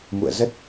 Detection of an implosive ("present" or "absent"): absent